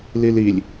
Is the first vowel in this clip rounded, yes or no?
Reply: no